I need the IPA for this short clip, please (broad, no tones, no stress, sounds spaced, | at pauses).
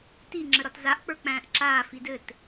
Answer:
t i ŋ͡ǁ ə ɾ ɒ t z a ʔ k͡p ə˞ k͡p æ̃ː ʔ ǁ aː f i d ɘ t